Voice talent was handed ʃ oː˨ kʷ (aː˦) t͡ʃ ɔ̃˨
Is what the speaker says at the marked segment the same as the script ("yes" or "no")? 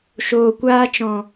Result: yes